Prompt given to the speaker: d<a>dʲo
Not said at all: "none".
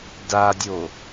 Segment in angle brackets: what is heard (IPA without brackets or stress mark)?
a